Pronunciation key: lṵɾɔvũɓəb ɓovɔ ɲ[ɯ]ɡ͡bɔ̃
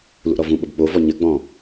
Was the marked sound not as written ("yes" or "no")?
yes